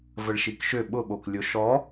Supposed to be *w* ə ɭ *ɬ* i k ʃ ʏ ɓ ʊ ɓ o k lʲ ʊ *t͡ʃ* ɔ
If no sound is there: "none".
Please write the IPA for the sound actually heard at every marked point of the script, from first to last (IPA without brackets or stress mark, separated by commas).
v, ʃ, ʃ